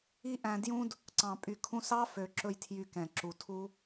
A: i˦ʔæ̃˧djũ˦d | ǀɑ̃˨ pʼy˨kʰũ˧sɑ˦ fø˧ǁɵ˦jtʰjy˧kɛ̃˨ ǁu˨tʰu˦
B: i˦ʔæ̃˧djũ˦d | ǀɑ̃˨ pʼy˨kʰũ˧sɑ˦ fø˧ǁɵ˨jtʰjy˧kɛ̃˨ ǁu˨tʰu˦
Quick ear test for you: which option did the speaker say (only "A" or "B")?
A